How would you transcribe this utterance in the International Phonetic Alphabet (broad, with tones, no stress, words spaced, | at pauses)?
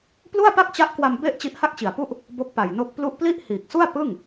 plu˥˩a̯pa˥˩k̚t͡ɕa˦˥ʔkwa˧m be˥˩ʔ t͡ɕi˦˥ʔha˥˩k̚t͡ɕi˨˩a̯pu˥˩ʔ | bo˦˥k̚pa˨˩jno˦˥k̚plu˥˩ʔ pli˥˩ʔhiː˨˩k̚su˥˩a̯ pɯ˥˩ŋ